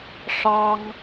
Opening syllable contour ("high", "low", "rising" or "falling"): high